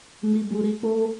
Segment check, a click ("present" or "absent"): absent